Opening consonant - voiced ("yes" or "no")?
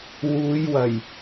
yes